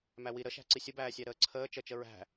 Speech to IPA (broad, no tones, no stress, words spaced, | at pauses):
mæwi ɾəʃæ̤ǀi sʲəbæːsʲæ ɾəːǀʰəː t͡ʃət͡ʃə ɹæ̤